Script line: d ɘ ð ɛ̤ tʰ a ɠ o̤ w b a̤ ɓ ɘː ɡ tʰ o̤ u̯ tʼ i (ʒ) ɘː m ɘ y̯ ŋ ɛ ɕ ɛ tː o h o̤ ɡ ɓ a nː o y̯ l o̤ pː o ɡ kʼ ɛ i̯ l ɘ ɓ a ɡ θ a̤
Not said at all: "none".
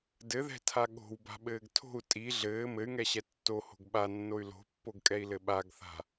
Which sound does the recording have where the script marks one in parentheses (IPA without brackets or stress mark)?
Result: ɮ